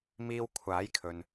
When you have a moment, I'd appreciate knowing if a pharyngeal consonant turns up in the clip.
no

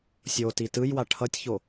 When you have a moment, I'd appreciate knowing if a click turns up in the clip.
no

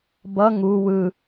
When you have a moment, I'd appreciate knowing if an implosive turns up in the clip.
no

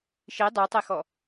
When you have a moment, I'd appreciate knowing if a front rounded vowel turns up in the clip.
yes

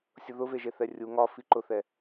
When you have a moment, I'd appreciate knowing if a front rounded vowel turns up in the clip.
no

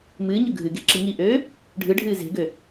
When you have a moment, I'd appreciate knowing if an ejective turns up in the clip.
no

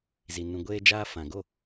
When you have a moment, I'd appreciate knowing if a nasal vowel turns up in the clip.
yes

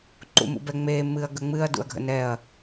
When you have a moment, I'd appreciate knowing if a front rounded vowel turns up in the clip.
no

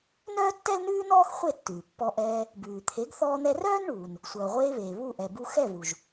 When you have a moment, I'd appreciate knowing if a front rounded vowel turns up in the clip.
yes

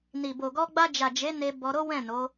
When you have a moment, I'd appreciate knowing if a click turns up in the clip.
no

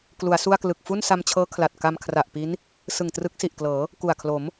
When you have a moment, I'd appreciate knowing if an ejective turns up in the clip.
no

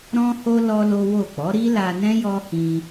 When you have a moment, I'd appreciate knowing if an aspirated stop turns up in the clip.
no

